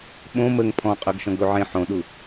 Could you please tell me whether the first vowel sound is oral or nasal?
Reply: nasal